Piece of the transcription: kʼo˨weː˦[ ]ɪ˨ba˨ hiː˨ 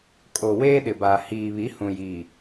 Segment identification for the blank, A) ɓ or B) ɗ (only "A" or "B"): B